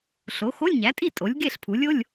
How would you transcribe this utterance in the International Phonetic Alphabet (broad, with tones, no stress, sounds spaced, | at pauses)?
ɬ o˩˥ x o˧˥˧ lʲ ɲ æ˩˥ tʼ i˥˨ tʼ o˩˥ lʲ ɡ e˥˨ ɬ pʰ u˩˥ lʲ o˧˥˧ lʲ